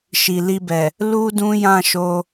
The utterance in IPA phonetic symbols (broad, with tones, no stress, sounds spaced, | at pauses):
ʃ i˨ l i˧ b ɛ˨ | l u˦ d ũ˦ j ã˦˨ ʃ o˧